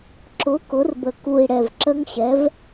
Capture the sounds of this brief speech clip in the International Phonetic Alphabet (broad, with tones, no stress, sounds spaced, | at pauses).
ǁ ʊ˩˥ k ʊ˩˥ r b ə˨˩ k u˨˩ i̯ ɽ ɛ˨˩ v ǁ ə˦˥ ŋ ɕ ɛ˩˥ v